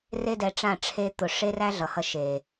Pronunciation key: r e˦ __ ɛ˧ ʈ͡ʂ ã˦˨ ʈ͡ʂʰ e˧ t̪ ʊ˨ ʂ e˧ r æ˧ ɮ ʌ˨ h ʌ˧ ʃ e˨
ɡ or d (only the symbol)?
d